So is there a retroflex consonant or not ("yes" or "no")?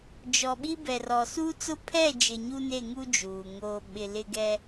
no